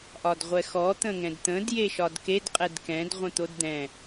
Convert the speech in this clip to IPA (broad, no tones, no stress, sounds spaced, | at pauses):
ʔ ɒ d ʁʷ ɛ x ɔ t̪ ə̃ ŋ ɛ̃ d t̪ ə̃ d j e ʃ ɒ d k e d qʼ ɛ d k ɛ̃ d ʁʷ ə̃ t̪ o d d̪ ɛ̃